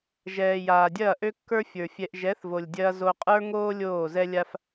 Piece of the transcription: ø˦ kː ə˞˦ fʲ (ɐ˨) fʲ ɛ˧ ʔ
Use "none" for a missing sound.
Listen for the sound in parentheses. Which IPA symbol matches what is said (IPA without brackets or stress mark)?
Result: ə˞˨